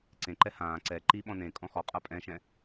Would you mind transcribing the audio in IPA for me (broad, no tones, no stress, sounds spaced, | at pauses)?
ǀ ẽ ǃ ɛ h ãː ǀ ɛ ǃ i ɓ ɔ̃ n ẽ kʼ ɔ̃ x ɔ qʼ a pʼ ɛ̃ ʃ ɛ̃